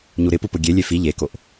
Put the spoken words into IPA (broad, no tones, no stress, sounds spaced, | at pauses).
ɲ u ɾ ɪ p u p ʊ ɡʲ e lʲ e f i ʎ e k o ʔ